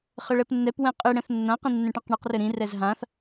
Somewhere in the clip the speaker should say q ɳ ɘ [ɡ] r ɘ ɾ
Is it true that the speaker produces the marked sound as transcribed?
no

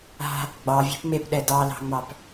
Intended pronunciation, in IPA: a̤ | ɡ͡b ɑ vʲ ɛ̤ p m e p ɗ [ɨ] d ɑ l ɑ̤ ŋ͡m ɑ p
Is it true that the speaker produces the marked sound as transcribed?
no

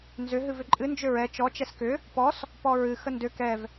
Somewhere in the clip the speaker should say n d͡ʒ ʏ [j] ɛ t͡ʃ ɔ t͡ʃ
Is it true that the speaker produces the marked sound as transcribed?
no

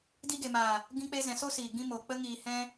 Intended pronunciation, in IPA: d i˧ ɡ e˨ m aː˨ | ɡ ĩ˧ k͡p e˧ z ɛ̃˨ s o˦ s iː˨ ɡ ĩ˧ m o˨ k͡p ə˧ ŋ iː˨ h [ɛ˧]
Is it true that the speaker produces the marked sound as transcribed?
no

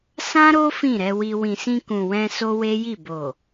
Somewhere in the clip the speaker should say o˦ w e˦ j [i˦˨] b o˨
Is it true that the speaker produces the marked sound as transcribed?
yes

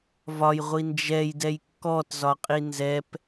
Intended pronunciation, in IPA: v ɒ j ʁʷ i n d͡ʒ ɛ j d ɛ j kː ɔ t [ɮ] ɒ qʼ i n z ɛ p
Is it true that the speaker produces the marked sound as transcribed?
no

